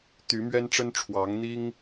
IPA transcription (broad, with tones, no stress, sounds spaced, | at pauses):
t̪ y˨˦ m ɥ ɛ˦ n ʈ͡ʂ ə˦ n ʈ͡ʂʰ w ɑ˨˦ ŋ n̪ i˦ ŋ